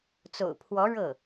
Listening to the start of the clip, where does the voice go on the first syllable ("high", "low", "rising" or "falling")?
low